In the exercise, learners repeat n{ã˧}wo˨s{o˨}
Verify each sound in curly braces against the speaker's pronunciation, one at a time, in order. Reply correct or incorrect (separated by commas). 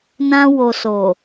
correct, correct